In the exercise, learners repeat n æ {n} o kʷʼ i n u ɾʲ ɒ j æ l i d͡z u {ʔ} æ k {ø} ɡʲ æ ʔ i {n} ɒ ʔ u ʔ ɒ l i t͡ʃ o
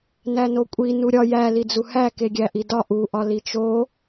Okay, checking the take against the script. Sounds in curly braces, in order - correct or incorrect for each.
correct, incorrect: h, incorrect: e, incorrect: d

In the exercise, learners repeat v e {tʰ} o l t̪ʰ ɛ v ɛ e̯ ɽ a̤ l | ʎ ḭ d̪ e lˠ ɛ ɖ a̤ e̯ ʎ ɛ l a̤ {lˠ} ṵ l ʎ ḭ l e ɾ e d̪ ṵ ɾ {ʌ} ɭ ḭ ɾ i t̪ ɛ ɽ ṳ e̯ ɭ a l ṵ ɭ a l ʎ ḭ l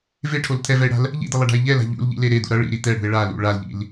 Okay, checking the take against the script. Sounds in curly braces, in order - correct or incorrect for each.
incorrect: ʈʰ, incorrect: ʎ, correct

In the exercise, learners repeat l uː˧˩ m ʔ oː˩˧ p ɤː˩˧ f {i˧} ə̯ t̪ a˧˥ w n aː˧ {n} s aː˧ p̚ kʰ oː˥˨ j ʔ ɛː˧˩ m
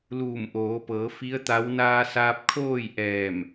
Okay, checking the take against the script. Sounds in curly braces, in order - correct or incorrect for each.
incorrect: i˧˥, incorrect: none

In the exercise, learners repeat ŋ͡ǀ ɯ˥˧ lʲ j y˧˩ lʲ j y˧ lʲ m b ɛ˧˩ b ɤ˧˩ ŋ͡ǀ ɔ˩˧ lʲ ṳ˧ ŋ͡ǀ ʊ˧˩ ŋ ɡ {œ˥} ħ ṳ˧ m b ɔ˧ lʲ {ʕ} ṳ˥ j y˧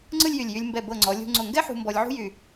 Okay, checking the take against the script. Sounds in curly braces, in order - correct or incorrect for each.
incorrect: ɛ˥, correct

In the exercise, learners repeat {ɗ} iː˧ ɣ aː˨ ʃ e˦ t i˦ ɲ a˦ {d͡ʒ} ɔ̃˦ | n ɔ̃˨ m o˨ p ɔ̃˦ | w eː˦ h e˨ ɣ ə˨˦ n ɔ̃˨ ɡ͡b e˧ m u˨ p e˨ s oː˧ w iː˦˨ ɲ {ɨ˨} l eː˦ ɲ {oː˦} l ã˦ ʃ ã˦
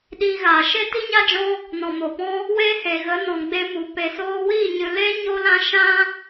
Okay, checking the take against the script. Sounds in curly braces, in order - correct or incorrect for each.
correct, correct, correct, incorrect: o˦

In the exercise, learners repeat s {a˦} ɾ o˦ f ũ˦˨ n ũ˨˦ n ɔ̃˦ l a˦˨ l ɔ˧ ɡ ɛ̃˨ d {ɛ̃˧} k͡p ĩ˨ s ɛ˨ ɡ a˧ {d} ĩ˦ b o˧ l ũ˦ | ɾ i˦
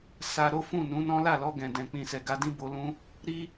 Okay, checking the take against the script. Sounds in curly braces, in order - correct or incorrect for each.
incorrect: a˧, incorrect: ɛ̃˨, correct

